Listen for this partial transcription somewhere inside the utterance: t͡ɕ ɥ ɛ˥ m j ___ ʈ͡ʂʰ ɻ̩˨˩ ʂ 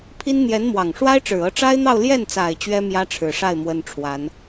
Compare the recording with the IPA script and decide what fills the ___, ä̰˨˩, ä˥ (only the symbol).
ä˥